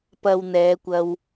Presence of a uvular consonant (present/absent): absent